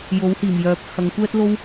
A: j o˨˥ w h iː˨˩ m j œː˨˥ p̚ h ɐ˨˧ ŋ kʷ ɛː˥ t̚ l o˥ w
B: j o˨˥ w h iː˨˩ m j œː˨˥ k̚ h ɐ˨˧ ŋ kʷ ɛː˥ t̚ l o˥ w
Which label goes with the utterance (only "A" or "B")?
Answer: A